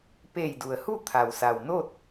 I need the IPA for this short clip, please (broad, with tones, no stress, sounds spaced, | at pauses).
p eː˧˩ j d u˩ ə̯ h u˥˨ t̪ʰ a˩ w s a˩ w n o˥˨ t̚